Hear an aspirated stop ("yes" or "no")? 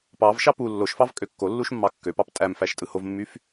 no